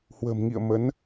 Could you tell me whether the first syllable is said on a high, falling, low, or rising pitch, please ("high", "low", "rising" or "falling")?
low